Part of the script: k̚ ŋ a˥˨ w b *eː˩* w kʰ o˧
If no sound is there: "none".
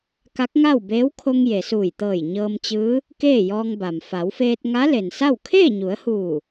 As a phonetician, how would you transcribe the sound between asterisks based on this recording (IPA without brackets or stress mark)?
eː˧˥